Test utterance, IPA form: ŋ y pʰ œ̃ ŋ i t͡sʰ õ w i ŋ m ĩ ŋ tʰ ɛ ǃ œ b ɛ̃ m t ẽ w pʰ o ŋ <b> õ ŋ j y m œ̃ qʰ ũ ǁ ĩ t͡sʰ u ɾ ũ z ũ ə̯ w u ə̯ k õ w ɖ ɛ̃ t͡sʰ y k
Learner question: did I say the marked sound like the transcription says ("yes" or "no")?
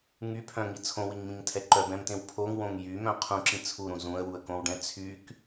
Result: no